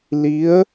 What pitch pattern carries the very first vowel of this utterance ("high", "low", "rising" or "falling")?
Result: rising